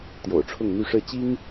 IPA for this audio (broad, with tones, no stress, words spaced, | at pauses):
t̪jo̰˨˩ʊ̯ʈ͡ʂʰʊ˥˨ŋn̪y˥˨ ʂɻ̩˥˨ t͡ɕi˦ŋ